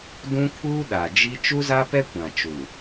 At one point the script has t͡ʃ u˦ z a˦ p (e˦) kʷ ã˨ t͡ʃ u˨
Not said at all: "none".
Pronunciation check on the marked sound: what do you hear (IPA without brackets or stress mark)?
ɛ˦